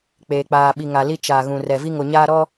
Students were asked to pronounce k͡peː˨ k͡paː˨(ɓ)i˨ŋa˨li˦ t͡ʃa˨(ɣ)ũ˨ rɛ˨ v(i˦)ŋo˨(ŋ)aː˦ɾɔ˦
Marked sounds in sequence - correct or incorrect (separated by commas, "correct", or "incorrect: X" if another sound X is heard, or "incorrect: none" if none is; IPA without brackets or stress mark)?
correct, correct, correct, incorrect: ɲ